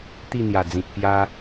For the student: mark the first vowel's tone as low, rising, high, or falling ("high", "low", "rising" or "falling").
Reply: falling